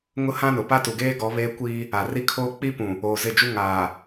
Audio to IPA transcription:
ŋʊ˦hã˦nʊ˨ pa˦tu˨ɡeː˦ɡɔ˨˦ βeː˦kʷiː˦ | a˨ri˦kʰoː˦ k͡pi˦ pũ˨ | oː˨zɪ˦˨d͡ʒu˦ ŋaː˨

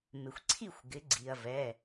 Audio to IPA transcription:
mɪ˩xʷǀʰi˦˨xʷɡɪ˩˧ ɡ͡ǀi˩ɐ̯vɛ˩˧˩

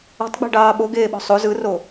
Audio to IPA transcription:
ɔ̤tˤɡ͡bɛ̤ɖɑː ɓoɡeːɓɔ̤ sˤo zɯro

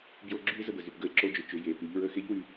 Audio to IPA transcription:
bjo˧ ɡ͡ǁy˥e̯ zə˧bə˩zy˩p ɡə˧e̯ǁo˧d͡ʒʏ˩˧ t͡ʃʏ˩˧ je˩˧py˩˧ʎ ɹə˧xe˧˥ʎ wy˧

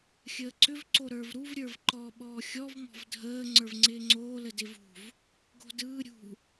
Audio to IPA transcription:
xʲəːǀʏvǀo ɾə˞vɾuvɾʲə˞v ǃɔ ɓɔːxʲɔvmɔ̤v dʱəː ŋ͡ǀə˞vŋ͡ǀɪːŋ͡ǀoːlə dɪvṳv | ɡo̤dɯː ɾʲṳ

